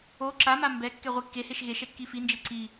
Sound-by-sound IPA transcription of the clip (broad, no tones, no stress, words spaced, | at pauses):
o ǁama mbɛkːɛ ʁʷikːeheʃ ɣeʃ ɛkːifind͡ʒe ǀi